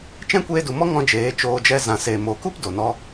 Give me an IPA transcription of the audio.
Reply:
t͡ʃ ɛ̃˦ kʷ eː˧ d u˨ m ɔ˦ ŋ ɔ̃˦ d͡ʒ eː˨˦ t͡ʃ oː˧ d͡ʒ ɛ˦ z ã˨ s eː˨ m o˨ k u˦ p d o˨ n ɔ˧

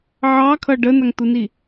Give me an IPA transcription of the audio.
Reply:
ʕ ɑ kʰ ʌ ɖ ə n a ŋ t̪ u n i

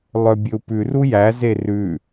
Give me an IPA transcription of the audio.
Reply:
lˠ œ bʲ ɵ u̯ p ʉ r u j æ z e r ʉ

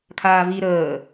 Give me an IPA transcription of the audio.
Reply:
kʰ aː v i ɾ əː

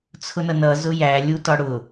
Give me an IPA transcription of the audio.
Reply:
t͡sʰ ʊ n ʌ n ʌ z ʊ j æ lʲ u t ɒ ɽ ʊ

